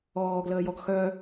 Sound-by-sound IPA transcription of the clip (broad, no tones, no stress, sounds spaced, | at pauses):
ɔː ɡ l əː j ɔ ɡ x œ